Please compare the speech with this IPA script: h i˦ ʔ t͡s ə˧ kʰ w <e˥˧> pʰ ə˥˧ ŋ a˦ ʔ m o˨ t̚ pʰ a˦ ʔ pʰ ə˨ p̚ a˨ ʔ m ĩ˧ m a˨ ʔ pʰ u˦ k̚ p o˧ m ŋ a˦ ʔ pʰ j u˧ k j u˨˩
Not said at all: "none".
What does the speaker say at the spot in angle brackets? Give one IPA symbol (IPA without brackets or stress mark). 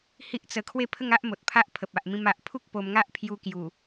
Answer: e˥˧